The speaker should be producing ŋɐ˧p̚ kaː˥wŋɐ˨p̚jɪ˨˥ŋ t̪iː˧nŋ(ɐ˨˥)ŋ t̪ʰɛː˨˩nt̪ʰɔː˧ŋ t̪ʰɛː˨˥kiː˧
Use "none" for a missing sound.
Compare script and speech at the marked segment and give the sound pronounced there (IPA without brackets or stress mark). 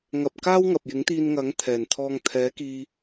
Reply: ɐ˨˥